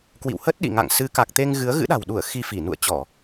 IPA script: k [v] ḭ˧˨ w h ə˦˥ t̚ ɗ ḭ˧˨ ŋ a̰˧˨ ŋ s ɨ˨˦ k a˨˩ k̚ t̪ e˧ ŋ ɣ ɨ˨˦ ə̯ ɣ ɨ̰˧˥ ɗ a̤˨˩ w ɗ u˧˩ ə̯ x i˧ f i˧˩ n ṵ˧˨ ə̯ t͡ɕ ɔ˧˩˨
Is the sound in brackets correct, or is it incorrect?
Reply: incorrect